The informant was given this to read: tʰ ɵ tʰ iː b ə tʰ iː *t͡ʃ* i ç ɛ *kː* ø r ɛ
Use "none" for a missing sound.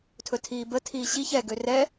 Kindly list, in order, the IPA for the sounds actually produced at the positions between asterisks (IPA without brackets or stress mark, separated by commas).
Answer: ɕ, ɡ